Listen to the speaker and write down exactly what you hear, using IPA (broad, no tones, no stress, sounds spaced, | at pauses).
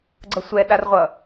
ɡ͡ǀ ʌ sʷ ɛ ɗ a r ʁʷ ʌ